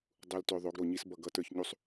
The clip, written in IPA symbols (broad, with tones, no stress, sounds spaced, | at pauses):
dˤ u˨ l t ø˨ ðˤ o˨˦ ɡ ɾ o˨ ɲ i˦ s b ʌ˦˨ ɡ ʌ˦ t ə˞˦ ç ɲ u˦ sˤ